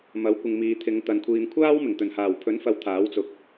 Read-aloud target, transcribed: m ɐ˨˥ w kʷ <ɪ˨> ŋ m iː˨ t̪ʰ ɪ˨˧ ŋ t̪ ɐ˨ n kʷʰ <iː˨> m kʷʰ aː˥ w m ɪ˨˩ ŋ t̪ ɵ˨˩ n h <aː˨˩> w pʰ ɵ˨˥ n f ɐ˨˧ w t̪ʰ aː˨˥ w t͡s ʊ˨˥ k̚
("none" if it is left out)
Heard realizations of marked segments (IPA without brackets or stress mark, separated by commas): ɪ˨, iː˨, aː˨˩